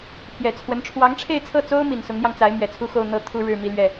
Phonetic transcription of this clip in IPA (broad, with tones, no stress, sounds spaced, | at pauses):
pʰ j ɛ˨˩ t͡sʰ w ə˧˥ n ʈ͡ʂʰ w ɑ˧˥ ŋ ʈ͡ʂʰ e˥˧ ɪ̯ t͡sʰ ɤ˥˩ t͡s o˥ ʊ̯ m i˨˩ n s ʊ˧˥ ŋ n̪ j ɑ˧ ŋ t͡s a˧˥ ɪ̯ m ɥ ɛ˨˩ t͡sʰ u˥˧ x o˥˧ ʊ̯ n̪ ɤ˥˩ t̪ʰ u˥ ɻ ɻ̩˥˧ m i˥˧ l ɥ ɛ˥˩